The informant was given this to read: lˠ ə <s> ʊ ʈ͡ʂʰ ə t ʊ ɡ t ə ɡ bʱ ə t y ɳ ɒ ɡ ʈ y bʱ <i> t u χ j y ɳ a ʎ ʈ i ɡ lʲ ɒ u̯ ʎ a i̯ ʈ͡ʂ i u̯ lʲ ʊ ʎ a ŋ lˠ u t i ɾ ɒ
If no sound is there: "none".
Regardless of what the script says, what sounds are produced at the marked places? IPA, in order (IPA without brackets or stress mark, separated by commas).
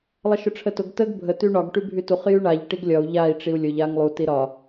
ʃ, y